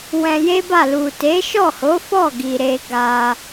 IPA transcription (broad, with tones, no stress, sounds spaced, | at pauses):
w ɛ̃˧ j e˦ b a˦˨ l u˨ t e˨˦ ʃ ɔ˦˨ h o˨˦ f ɔ˦˨ ɡ i˨ ɾ e˧ ɡ a˧